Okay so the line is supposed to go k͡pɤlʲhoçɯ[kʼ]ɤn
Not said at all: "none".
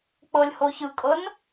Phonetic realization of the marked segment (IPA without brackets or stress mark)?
kʼ